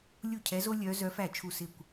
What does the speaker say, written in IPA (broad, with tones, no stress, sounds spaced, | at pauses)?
lʲ u˥˩ cʰ ɛ˧˥ z o˥ lʲ œː˧˥ z œ˧˥ f æ˥˩ t͡ʃʰ u˥˩ s ɪ˥˩ kʷ